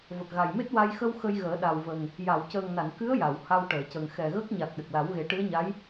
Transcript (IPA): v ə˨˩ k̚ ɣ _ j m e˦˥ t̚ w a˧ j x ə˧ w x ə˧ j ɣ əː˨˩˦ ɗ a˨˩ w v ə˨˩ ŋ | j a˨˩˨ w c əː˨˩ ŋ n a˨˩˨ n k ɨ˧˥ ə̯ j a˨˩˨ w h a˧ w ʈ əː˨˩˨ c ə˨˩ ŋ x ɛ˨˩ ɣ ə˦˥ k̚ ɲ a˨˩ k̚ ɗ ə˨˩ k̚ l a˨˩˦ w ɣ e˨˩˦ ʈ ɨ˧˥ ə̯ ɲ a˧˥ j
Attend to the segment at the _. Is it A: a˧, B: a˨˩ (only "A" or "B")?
B